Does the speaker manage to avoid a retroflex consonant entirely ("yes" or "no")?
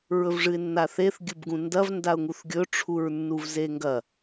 no